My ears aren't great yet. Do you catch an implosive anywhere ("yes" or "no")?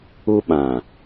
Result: yes